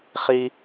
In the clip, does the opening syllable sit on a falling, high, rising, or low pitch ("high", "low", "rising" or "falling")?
high